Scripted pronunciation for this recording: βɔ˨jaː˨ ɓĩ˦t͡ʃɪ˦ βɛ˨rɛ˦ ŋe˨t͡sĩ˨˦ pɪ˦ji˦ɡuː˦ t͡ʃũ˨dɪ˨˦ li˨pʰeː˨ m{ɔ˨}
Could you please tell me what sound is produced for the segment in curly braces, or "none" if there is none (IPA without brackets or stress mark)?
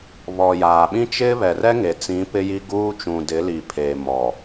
ɔ˨